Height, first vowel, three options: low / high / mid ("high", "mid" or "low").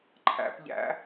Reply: low